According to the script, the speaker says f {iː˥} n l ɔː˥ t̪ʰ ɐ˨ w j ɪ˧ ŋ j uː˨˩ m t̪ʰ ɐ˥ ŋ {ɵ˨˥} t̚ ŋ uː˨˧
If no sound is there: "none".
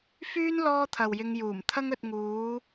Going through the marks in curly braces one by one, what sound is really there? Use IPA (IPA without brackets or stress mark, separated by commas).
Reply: yː˥, ɵ˧